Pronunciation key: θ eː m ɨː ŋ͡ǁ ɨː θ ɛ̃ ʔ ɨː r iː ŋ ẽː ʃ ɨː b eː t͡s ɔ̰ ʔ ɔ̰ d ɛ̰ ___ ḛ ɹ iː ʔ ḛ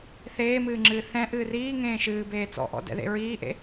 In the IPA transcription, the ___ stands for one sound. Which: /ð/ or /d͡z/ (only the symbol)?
ð